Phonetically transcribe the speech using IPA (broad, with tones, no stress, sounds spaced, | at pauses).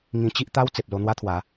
ŋ ĩ˧ t͡ɕ i˦ ʔ t̪ a˦ w t͡s e˨ p̚ l o˧ n̪ w a˦ t̪ʰ w a˨˦